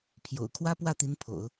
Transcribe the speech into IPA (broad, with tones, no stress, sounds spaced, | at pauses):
pʰ j o̰˨˩ ʊ̯ kʰ w ä˥ p w ä˥˩ t̪ i˧˥ n pʰ o̰˨˩˦ ʊ̯